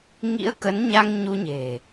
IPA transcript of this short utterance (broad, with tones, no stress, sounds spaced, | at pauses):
ŋ ḭ˧˥ ə̯ k ə˨˦ n ɲ a˧ ŋ ɲ u˧ ɲ e̤˨˩